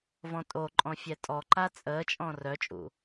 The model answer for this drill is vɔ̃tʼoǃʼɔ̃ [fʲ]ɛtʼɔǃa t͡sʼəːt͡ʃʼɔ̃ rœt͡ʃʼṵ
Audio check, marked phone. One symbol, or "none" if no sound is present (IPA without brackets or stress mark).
fʲ